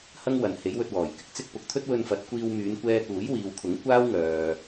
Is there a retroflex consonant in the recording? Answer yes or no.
no